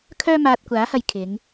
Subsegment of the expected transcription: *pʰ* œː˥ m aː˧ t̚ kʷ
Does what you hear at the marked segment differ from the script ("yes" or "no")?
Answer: yes